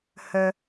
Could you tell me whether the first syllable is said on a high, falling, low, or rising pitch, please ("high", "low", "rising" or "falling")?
high